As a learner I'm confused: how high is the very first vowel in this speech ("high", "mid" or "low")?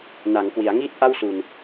low